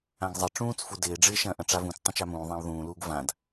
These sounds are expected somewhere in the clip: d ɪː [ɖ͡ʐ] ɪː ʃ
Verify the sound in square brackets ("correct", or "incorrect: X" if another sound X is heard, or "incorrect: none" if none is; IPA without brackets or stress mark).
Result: correct